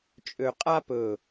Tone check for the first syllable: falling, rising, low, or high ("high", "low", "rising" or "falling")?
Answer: low